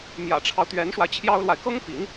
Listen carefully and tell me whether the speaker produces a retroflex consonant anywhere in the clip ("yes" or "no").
yes